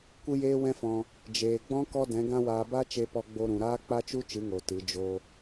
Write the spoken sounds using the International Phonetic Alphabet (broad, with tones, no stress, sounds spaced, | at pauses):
kʷ ɨ˦ j eː˦ w ɛ̃˦ f ɔ̃˧ | d͡ʒ eː˨ ɡ͡b ɔ̃˦ k ɔ˦ d ɛ̃˨˦ ɡ ã˦ w aː˧ b a˦ t͡ʃ e˧ p ɔ˧ ɡ͡b o˧ ɾ ũ˨ ɾ aː˦ k͡p a˦ t͡ʃ u˦ t͡ʃ ɨ˨˦ ŋ o˨ t ɨ˨˦ d͡ʒ o˦